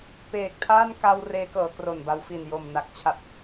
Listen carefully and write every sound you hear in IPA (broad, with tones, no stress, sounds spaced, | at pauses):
p eː˨˩ k̚ tʰ aː˥˩ n k a˧ w r eː˦˥ k ɤː˩˦ k r o˨˩ n b a˧ w f i˨˩ n j o˨˩ m n a˨˩ k̚ t͡ɕʰ a˨˩ p̚